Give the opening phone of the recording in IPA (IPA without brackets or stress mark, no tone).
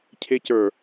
cʰ